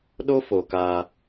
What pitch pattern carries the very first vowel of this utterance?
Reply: high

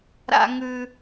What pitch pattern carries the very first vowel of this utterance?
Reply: high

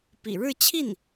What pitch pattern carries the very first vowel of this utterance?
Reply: low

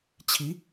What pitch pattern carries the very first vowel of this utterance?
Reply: rising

